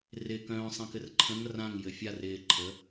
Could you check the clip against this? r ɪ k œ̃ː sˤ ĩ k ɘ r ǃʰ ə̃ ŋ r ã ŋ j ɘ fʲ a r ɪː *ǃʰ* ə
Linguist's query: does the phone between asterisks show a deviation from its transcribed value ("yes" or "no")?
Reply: no